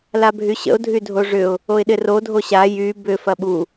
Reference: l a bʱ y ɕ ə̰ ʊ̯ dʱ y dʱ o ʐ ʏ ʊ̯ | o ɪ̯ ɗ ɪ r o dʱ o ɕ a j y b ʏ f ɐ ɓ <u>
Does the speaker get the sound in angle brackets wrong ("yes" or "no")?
no